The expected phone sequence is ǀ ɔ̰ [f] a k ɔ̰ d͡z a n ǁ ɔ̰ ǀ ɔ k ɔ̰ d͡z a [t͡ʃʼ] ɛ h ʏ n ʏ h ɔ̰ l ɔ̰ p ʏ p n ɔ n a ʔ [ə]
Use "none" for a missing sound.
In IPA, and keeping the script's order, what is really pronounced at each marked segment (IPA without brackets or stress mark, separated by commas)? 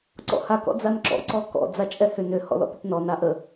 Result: h, t͡ʃʼ, ə